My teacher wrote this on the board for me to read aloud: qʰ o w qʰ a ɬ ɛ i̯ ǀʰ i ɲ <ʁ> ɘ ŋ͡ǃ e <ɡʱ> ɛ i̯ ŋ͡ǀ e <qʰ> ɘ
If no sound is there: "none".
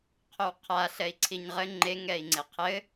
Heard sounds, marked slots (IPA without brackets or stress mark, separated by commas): ʁ, ŋ, qʰ